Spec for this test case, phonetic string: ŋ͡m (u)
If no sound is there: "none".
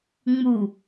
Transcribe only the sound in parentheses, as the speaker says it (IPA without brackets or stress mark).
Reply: u